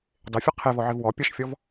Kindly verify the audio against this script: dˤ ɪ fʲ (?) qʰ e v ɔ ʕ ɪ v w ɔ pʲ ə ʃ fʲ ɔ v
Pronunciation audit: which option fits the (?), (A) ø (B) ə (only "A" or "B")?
B